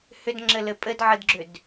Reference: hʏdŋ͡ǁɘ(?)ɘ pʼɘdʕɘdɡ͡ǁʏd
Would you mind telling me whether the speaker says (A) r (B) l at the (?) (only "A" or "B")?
B